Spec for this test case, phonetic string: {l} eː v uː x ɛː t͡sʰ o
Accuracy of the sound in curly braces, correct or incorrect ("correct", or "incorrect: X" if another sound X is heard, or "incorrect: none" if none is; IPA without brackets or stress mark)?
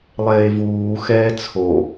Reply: incorrect: lˠ